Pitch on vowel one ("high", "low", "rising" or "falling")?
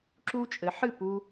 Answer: high